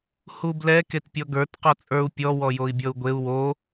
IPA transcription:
hublɛ ketpʲɔɡə˞t qɔt͡sʼə˞u̯ pʲɔ wɔjoi̯bʲɔu̯ɡʷeu̯ wo

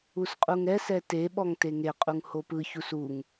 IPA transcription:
usqʼuŋɛsɛ teɓɔŋ teŋeqʼuŋ hopɯçus uŋ

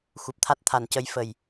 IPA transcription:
xu˨˩p̚t̪ʰa˦˥t̚t̪ʰa˨˩˦ncə˧˥j fə˨˩j

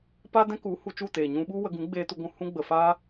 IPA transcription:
pa˦dɛ̃˦ku˨˦ hu˧t͡ʃu˦˨teː˨ ɲũ˧ɓu˦ wə˧ ɡũ˨˦ɡ͡beː˧ tu˧ɡʷũ˧ hũ˦ɡ͡bə˨fa˦

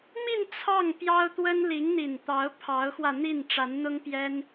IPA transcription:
mi˥˧n t͡sʰɑ˥˩ŋpjɑ˥ʊ̯t̪wə˥n li˧˥ŋn̪i˨˩nt̪ɑ˧˥ʊ̯ pʰɑ˧˥ʊ̯xwä˧n̪i˥˩n ʈ͡ʂa˧˥nn̪ʊ˥ŋpjɛ˥n

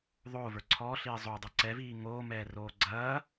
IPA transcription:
ðˤoːvə˞ ǀʰɔːɬiː zˤodˤə˞ ǀɛviː ŋoːmɛːroː ɡ͡ǀɐː

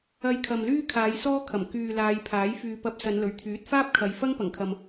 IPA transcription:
ɐ˧jkʰɐ˨mlyː˥kʰaː˨˧j sɔː˥kʰɐ˨˩m kyː˨laː˨˧jpʰaː˨˥j fyː˨pɐ˧p̚ sɐ˨˧nlɵ˨˩ɥt̪ʰyː˨˥t̚ faː˥p̚kʰɐ˨˧j fɐ˥ŋpɐ˨˩ŋkʰɐ˨m

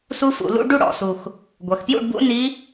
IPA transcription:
su˦˥fṵ˧˩˧ lṵ˦˥ ɖu˥˧ɽɔ̰˧˩˧su˨˩x | ɡʷɐ˨˩xpjṵ˥˧ɖbṵ˦˥ ni˦˥

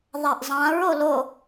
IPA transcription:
ðˤaʔzˤãɹ olo

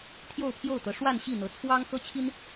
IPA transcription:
t̪ʰjo˥˧ʊ̯pʰjo˥˩ʊ̯t̪ɤ˧˥ʂwa˥˧n ɕi˥˩n̪ɤ˧˥t͡sʰwɑ˥ŋ xɤ˥t͡ɕʰi˥n

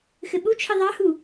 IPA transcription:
xɘɓut͡ʃʰɘ ðˤɑhu

